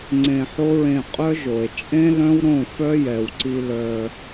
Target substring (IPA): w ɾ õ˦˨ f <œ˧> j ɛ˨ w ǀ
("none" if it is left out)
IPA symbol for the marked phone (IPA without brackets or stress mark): œ˦